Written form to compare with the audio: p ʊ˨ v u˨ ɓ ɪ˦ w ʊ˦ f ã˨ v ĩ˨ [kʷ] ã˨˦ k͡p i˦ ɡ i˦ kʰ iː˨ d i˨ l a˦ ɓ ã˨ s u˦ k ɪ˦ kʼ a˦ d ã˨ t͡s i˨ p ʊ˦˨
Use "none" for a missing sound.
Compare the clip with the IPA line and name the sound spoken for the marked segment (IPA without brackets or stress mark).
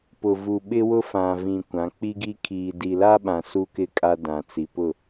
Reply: kʷ